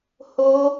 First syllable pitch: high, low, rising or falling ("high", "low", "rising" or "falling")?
high